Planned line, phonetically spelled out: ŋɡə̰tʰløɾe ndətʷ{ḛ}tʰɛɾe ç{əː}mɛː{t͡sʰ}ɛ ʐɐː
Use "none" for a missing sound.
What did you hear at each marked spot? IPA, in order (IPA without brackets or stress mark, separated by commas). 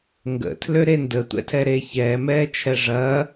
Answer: ɛ̰, ɛː, t͡ʃʰ